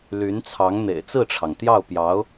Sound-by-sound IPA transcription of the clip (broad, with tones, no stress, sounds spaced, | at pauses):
l y˧˥ n t͡sʰ ɑ˧˥ ŋ n̪ ḛ˨˩ ɪ̯ t͡s ɹ̩˥˩ ʈ͡ʂʰ ɑ˩ ŋ t̪ j ɑ˥˩ ʊ̯ p j ɑ˧˥ ʊ̯